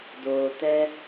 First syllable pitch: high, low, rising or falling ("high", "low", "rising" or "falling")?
low